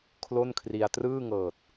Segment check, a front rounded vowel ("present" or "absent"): absent